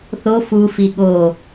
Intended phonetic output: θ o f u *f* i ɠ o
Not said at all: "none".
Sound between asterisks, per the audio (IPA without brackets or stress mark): f